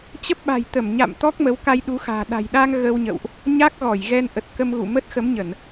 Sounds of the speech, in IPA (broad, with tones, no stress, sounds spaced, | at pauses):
t͡ɕ ə˦˥ p̚ ɓ a̤˨˩ j t̪ ə˧˩ m ɲ a̰˧˨ m t̪ ɔ˦˥ k̚ m ə˨˦ w k a˧ j ɗ u˨˦ x a̤ː˨˩ ɗ a̤˨˩ j ɗ aː˧ ŋ ɣ ə˧ w ɲ ə̰˧˨ w ʔ | ɲ a˦˥ k̚ ɣ ɔ˧˩ j ɣ ɛ˧ n ʔ ə˨˩ t̚ k ə˧ m ɣ ṵ˧˨ m ə˦˥ t̚ x ə˨˦ m ɲ ə˧˩˨ n